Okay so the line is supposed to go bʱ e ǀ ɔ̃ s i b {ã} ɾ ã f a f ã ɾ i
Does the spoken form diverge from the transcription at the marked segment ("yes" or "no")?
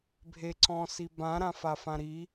no